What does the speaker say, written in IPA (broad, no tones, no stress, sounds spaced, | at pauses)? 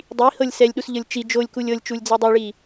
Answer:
dˤ i h ɤ lʲ s ɛ lʲ ɗ u s ʎ ɤ lʲ t͡ʃ i d͡ʒ o lʲ k u lʲ ɤ lʲ t͡ʃ u lʲ d͡z ɛ dˤ o ɭ i